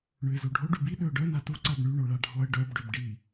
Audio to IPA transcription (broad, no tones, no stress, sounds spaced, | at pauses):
ɳ ø ɪ̯ z o ɖʱ o ɖ y b i ɗ ø ʊ̯ ɖ œ n a t u ǀ a b ɳ y ɳ o ɭ a ɖʱ ɔ ə̯ ɖ œ b ɖ ø b ɖ i